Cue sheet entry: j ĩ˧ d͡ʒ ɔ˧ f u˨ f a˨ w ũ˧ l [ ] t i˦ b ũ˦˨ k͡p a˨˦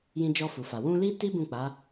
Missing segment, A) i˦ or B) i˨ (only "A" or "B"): A